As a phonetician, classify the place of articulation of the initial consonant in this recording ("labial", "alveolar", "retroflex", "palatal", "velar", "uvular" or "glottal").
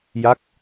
palatal